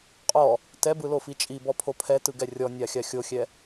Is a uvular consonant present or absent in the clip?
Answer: present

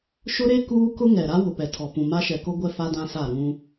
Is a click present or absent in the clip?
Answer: absent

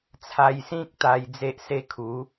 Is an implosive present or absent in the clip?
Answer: absent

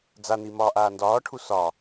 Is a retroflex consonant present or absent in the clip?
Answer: present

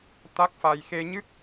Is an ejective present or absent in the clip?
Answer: absent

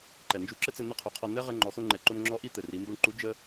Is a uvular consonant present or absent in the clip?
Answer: present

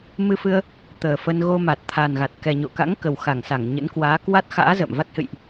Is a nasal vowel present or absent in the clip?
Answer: absent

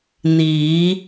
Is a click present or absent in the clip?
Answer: absent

